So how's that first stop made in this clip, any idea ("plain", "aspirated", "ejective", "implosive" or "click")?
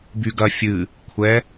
plain